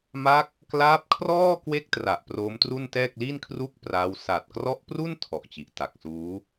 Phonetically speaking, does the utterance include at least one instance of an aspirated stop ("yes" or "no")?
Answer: yes